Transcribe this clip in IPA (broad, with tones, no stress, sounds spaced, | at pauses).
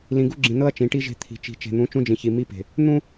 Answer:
l ĩ˨ ɡ u˦ ɡ͡ǁ ĩ˨ n ɤ˦ ɐ̯ t͡ʃ ĩ˨ ʈ i˦ ʒ e̤˦ t̪ʰ i̤˨ t͡ʃ i̤˨ t͡ʃ e̤˨ n̪ ũ˨˦ t͡ʃ ũ˦ d͡ʒ ĩ˨ ç i˨ m i˦ p e̤˨ | n̪ ũ˦